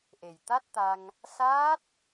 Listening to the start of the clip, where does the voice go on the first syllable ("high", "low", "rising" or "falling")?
low